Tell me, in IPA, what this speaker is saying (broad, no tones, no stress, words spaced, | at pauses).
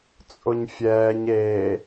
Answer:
t͡sʼʊɲfʲɛːɲ eː